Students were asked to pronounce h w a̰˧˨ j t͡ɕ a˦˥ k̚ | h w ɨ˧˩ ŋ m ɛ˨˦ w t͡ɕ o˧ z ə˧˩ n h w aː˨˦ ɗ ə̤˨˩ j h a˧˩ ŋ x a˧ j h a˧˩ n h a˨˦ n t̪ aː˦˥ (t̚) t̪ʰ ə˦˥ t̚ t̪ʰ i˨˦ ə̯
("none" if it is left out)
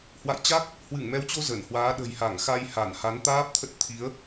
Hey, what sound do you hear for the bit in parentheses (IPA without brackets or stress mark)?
p̚